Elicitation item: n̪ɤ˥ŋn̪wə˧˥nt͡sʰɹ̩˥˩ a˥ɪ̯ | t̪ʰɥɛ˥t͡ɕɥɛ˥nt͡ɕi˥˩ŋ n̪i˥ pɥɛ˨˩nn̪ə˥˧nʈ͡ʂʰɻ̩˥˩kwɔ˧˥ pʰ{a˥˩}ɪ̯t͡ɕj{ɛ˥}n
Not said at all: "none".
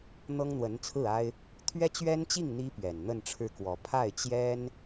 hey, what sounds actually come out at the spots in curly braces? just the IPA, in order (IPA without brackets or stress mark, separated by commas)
a˥˩, ɛ˥